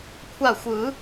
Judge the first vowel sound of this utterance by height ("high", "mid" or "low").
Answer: low